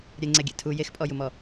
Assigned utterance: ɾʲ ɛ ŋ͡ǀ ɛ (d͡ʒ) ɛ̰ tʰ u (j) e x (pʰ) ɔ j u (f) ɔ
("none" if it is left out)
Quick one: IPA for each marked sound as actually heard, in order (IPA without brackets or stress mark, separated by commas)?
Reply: ɡʲ, j, pʼ, m